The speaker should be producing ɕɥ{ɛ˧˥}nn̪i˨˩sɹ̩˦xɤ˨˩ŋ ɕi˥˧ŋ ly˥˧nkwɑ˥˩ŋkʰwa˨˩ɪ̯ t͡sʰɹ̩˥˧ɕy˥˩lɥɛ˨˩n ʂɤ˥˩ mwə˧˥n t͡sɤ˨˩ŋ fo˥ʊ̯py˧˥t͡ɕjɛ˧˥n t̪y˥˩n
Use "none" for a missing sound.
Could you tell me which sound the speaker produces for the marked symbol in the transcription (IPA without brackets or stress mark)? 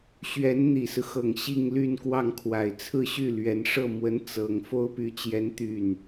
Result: ɛ˧˥